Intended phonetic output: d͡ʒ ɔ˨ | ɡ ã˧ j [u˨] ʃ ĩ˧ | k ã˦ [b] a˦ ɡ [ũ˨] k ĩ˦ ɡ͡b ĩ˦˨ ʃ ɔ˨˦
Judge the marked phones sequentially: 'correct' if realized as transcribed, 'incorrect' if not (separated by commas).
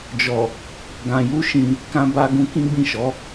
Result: incorrect, correct, incorrect